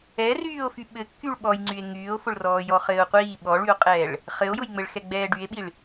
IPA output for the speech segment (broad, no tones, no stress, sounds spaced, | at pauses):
ɛ r yː o̯ f y ɓ ɘ kː y ɭ ɓ ɔ j ŋ͡ǀ y e̯ ŋ yː o̯ f ʊ ɭ r ɔː j ɔ χ ɘː o̯ qʷ iː ɓ ɔ ɭ y o̯ qʼ ɛː ɭ | χ ɘ o̯ j ʊ j ŋ͡m ɘ ɭ x ɛ ɡ͡b ɛː ɖ y e̯ ɓ i ɭ